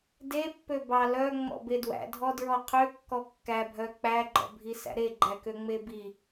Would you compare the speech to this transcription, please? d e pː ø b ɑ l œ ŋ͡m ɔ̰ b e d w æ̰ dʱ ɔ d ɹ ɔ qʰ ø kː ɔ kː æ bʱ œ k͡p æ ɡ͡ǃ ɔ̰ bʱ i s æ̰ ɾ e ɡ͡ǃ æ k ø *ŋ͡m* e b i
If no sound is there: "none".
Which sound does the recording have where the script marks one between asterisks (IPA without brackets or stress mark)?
ŋ͡m